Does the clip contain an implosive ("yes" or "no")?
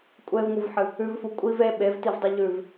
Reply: yes